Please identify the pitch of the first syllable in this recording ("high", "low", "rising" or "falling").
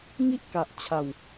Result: high